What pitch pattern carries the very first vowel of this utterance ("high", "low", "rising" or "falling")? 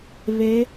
rising